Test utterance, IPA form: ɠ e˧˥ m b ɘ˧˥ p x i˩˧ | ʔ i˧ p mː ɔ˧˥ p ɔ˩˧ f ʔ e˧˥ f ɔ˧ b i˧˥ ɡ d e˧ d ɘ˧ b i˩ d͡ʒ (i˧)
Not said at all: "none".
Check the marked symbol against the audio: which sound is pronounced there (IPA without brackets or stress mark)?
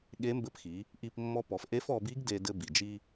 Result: i˧